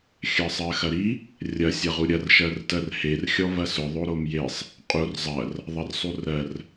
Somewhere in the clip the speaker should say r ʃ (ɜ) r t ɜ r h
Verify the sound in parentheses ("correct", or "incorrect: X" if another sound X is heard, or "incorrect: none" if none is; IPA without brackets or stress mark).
correct